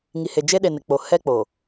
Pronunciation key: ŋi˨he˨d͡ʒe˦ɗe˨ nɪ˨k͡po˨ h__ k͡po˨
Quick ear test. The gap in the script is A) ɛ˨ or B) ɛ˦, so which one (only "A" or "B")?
B